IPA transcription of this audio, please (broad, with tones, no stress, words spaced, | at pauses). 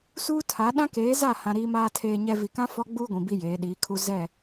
suː˦tʰa˨˦ ɗã˦keː˨˦za˦˨hã˨ ɾiː˨maː˨tʰeː˨ɲɛ˨ vi˨kã˦ fɔ˦ɡ͡buː˦ɡʷĩ˨ bi˦jeː˨˦ɗiː˨˦kʰu˦ zɛ˦˨